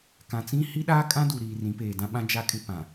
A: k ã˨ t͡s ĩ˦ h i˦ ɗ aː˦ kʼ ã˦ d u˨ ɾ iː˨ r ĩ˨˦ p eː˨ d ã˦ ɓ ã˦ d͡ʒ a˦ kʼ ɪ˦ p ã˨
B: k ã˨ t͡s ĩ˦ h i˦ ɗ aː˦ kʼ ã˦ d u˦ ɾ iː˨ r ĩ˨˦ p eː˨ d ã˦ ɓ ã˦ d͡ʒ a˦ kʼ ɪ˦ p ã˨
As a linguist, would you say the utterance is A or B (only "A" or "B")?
A